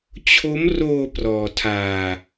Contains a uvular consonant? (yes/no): no